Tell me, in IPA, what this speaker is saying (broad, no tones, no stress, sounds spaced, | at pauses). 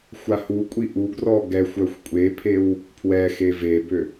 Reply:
xʷ a h u kʷʼ i ʔ u ɡ r ɔ ɡ ɛ xʷ œ xʷ kʷʼ e pʰ e w | pʰ w ɛ x e v e b ø